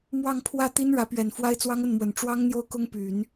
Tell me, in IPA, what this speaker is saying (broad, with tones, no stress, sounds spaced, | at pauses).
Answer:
m w ɑ˥˧ ŋ pʰ w ä˥˩ t̪ i˥ n ɻ ä˧˥ p ɥ ɛ˨˩ n f w a˥ ɪ̯ t͡s w ɑ˥ ŋ ə˥˩ n m w ə˨˩ n ʈ͡ʂ w ɑ˥ ŋ n̪ j o˥˩ ʊ̯ k ʊ˥ ŋ p y˨˩˦ n